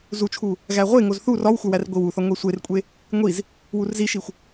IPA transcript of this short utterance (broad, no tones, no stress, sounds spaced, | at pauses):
z u t͡ʃʰ u | ɣ æ ʁʷ e ŋ o z θ u r ɒ w xʷ æ w æ r ɡʷ i w u θ ɒ ŋʷ e sʷ e r kʷʼ e | ŋʷ i z | w u r z i ʃ i xʷ